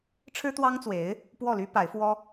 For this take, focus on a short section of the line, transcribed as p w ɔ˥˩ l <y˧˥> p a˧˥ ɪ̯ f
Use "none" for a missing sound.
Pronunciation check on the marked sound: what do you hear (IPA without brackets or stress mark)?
y˥